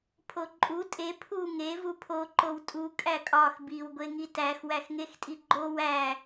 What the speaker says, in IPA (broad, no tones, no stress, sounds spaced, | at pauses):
pʰ o ǃʼ u tʼ e pʰ u ŋ e v u pʰ o ǃ o w tʼ u kʼ æ kʼ ɒ x b i w ɡʷ e ŋ i t æ x w æ x ŋ e x tʼ i ɡ͡ǃ o w æ